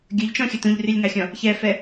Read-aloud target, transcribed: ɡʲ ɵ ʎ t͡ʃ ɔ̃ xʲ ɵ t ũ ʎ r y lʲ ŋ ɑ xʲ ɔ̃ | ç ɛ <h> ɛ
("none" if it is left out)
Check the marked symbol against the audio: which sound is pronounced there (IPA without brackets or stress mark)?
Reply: f